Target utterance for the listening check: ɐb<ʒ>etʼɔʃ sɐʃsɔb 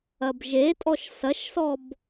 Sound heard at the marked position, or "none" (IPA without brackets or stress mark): ʒ